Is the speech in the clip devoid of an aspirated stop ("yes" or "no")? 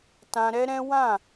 yes